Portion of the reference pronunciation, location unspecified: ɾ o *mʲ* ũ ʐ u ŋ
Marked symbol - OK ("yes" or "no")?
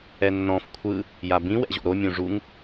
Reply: yes